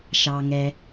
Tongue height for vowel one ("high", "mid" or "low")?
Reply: low